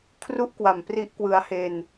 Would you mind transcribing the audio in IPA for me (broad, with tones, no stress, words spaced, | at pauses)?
kʰru˦˥ʔ kwa˨˩mpri˦˥ʔkwɯ˧a̯ he˧n